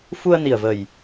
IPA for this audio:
f u˧ ə̯ n i˨˩ ə̯ v ə˨˩ j

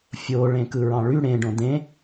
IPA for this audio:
fʲ o ɭ ẽ k ɯ ɹ ɑ̃ ɭ y ɽ ẽ ɖ õ d ẽ

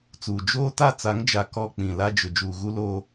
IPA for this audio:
t͡s uː˨ d͡ʒ oː˦ t a˦˨ t͡s a˨˦ ŋ d͡ʒ a˨ k ɔ˦˨ k͡p ĩ˨ l a˦ d͡ʒ ʊ˨ d͡ʒ uː˨ ɣ u˦ l oː˦

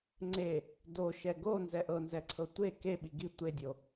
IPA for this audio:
ŋ͡ǀ e | d o ʃ ɛ ɡ o n z ɛ ʔ ɤ n z ɛ ǀʰ ɤ tʷ e k e ɓ i ɡ i tʷ e dʲ o

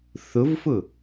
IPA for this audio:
θ ʊ v f ʊ

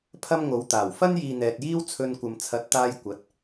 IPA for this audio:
pʰ ɐ˥ m ŋ o˨˧ w t̪ aː˨˩ w f ɐ˥ n j iː˨ n̪ ɛː˨ t̚ j iː˥ w t͡sʰ ɵ˧ n kʷ ɐ˨ m t͡sʰ ɐ˨˥ t̚ t̪ aː˧ j kʷ ɐ˨˥ t̚

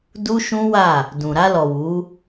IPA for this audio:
d u˦ ʃ ũ˦ w a˦˨ | d ũ˨ ɾ a˧ l ɔ˨ w u˨˦

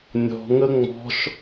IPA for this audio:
nʲ ɔ̤ ŋ ə ŋ͡m ɔ̤ ʃ

